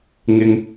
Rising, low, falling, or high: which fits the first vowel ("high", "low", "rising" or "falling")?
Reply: high